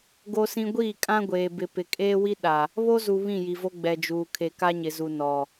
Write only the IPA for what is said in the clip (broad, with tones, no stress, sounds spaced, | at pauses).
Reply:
ɡ o˦ s ĩ˦ ɡʷ iː˦˨ kʼ ã˦ ɡʷ eː˨ b ɪ˨ p ɪ˨ kʼ eː˦ w i˦ ɗ a˨ | β o˦ z u˨ β ĩ˦˨ j i˨ v o˦ ɡ͡b ɛ˨ d͡ʒ uː˨ kʰ e˨ k a˦ ɲ ɪ˨ z u˨ n ɔ˨